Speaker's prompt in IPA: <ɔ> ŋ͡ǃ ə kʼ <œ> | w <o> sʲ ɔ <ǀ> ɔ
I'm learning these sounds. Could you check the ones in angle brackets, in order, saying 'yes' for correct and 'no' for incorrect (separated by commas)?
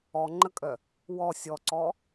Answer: yes, yes, no, yes